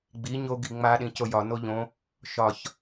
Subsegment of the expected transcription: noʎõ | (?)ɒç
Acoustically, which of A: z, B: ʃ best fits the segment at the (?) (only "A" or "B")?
B